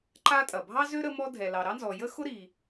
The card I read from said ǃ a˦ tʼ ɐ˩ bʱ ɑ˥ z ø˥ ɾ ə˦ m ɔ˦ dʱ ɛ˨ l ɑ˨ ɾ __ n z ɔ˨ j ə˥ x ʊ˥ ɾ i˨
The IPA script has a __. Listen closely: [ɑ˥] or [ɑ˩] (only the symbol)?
ɑ˥